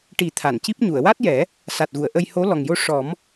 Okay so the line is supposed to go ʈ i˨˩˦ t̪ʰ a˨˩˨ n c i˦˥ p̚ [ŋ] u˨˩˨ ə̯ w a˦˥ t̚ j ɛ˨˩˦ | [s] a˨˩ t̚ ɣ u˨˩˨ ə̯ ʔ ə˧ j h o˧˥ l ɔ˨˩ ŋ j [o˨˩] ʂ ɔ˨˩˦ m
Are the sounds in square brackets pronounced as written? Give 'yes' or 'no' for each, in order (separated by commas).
no, yes, no